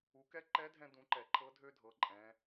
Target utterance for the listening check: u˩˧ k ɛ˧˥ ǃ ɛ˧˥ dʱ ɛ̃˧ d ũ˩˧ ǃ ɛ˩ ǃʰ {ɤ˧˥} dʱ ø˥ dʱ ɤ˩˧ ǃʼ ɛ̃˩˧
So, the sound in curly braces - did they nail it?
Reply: yes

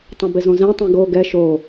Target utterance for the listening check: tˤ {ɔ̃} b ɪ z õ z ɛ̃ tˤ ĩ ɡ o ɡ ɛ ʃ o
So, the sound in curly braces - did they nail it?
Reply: no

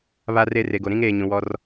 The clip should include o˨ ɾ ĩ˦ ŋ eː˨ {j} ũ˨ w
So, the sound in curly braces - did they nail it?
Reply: no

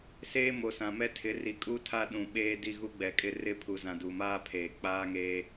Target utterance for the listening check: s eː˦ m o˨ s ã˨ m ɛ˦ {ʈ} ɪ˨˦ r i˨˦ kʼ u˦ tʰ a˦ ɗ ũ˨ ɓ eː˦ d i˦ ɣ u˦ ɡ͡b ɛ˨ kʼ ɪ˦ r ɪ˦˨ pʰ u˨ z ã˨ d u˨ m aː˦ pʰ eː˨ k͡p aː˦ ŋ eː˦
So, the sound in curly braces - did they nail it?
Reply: no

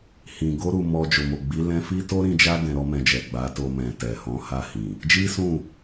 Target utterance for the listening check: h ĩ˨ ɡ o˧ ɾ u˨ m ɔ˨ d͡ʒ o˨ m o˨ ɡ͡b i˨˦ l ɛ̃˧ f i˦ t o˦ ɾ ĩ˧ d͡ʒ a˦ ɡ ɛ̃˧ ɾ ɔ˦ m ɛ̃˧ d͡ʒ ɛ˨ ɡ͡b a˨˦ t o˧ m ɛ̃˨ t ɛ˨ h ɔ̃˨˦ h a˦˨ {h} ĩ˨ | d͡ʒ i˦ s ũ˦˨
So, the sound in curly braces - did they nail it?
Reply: yes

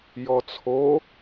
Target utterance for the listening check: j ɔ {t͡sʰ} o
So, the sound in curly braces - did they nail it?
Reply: yes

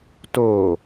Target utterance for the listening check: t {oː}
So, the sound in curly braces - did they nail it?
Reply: yes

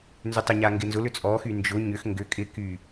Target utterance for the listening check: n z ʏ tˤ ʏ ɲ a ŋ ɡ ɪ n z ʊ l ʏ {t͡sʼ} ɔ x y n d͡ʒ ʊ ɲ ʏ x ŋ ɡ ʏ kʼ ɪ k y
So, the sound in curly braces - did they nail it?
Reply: yes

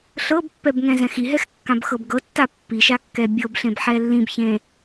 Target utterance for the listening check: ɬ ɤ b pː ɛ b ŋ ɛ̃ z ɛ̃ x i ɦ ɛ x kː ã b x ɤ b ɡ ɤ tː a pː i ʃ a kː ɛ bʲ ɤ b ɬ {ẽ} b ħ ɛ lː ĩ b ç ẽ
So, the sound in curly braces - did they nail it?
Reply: yes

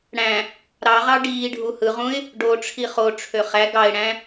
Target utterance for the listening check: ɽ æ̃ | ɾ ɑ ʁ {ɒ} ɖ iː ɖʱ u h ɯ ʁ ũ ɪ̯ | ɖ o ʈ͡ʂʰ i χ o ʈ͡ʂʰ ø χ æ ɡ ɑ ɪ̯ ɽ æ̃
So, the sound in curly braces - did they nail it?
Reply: no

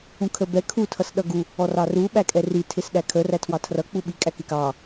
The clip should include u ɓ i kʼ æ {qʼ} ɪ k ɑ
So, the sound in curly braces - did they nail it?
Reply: no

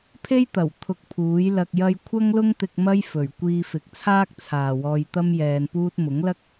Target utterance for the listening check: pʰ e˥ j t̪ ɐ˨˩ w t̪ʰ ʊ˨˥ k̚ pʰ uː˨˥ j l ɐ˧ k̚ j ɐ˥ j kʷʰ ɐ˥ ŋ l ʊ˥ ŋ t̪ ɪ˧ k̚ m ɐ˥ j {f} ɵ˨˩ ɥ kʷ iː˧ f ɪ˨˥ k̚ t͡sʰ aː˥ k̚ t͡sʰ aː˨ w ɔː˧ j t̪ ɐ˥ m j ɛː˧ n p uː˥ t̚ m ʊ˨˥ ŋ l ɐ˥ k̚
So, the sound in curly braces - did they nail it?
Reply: yes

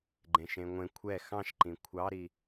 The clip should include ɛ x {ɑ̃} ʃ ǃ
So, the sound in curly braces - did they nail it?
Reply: yes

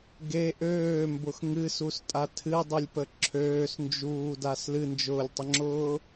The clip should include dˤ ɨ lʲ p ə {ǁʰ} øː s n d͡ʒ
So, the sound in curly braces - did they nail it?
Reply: yes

